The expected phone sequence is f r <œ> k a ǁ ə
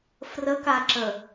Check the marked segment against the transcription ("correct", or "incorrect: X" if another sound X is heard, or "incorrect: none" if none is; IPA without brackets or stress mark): incorrect: ə